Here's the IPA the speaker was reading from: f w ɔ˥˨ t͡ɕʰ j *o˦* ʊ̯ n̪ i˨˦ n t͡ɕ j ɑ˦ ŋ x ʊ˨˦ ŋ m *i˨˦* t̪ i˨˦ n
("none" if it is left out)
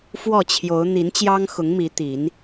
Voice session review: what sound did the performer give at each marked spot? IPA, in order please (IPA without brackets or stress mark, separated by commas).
o˨˦, i˨˦